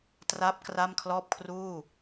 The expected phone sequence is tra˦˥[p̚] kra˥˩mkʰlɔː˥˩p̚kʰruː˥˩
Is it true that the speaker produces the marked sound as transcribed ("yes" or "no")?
yes